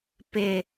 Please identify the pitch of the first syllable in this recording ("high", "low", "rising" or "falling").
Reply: low